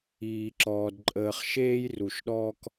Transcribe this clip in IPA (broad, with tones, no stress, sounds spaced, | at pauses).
iː˨ ǁ ɔː˨ d ǃʼ əː˨ χ ʃ eː˦ j r u˨ ʃ ɗ ɔː˦ k